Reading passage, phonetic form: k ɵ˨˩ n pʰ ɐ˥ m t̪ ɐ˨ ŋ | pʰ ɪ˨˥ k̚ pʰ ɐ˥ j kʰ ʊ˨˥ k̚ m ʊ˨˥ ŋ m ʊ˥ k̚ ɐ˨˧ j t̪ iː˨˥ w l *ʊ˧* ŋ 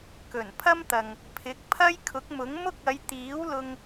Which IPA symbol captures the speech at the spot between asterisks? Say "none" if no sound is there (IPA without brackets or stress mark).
ʊ˧